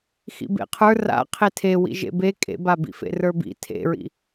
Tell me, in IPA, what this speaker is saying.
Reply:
xḭbḛqʰə˞ ra̰ qʰetʰewḭ ʒḛbe kʼḛbabḭfḛ rə˞bḭ tʰḛɹḭ

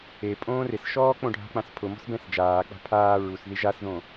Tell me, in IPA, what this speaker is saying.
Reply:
e pʼõːrɪsʃɔː k͡põɖʱa̤k͡pãs pʰʊ mɔ̤sbɛ̃sd͡ʒaːk͡pa̤ pʰaː ɹusði ʒasðõ

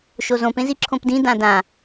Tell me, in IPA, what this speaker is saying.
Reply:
ʃozõp ẽziǁʰõpdĩ dãdã

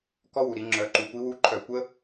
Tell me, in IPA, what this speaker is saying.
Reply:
kɔ˦˥wu˩ɾi˩˧ ŋ͡ǁœ˩˧ ǃu˩˧kʷi˨˥wu˦˥ ǃʰœ˧˩˧kʷə˦˥

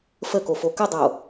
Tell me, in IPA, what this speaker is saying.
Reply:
fəko fokədˤo

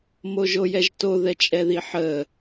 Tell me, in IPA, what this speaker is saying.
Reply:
moʒojɛʒto ðɛt͡ʃʼɛðiħə

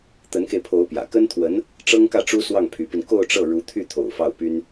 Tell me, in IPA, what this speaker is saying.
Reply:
t̪ə˧˥nke˧ɪ̯pʰo˧˥ʊ̯ pjä̰˨˩ kə˥nt̪ʰwə˧˥n | ʈ͡ʂɤ˥ŋkä˥˩ʈ͡ʂu˥ swɑ˥˩ŋpʰy˧˥pi˧n ko˥˧ʊ̯ʈ͡ʂɤ˥˩ ɻu˧˥t̪ʰy˥˩t̪ʰo̰˨˩ʊ̯ fɑ˥˩ʊ̯py˥n

